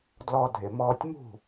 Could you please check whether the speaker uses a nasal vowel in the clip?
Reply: no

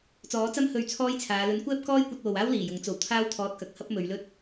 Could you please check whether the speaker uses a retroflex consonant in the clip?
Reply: no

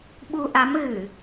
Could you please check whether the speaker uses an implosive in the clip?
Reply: yes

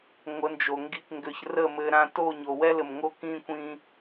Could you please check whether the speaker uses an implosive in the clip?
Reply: no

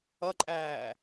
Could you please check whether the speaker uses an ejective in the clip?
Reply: yes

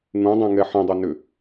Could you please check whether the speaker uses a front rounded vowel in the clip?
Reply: yes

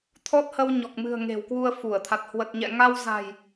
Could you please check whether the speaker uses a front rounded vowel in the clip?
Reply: no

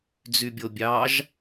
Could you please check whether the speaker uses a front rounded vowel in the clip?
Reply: yes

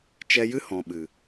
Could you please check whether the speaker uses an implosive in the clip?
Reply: yes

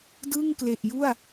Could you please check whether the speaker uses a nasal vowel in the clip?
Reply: no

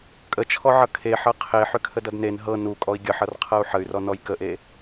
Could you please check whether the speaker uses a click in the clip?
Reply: no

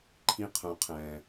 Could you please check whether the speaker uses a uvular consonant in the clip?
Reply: yes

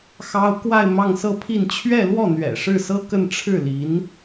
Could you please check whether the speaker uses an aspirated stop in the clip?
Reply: yes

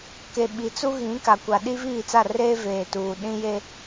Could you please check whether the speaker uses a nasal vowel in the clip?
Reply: yes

